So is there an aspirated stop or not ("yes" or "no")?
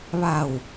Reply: no